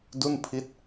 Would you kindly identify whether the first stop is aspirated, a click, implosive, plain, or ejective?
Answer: plain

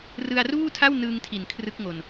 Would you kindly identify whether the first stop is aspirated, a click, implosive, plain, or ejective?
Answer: aspirated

